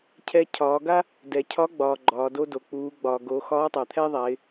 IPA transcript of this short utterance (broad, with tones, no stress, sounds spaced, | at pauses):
cʰ ɛ˧ cʰ ɒː˩˧ ɡ a˥ | d ɛ˩ cʰ ɒ˧˥ ɡ͡b ɒː˩ ɡ͡ǃ ɒː˩ d o˧ d o˩ k͡p uː˩˧ ɡ͡b ɒː˩ ɡ o˩˧ x ɒː˧˥ tˤ a˩ t̪ʰ ɛ˥ ðˤ a˩˧ ɪ̯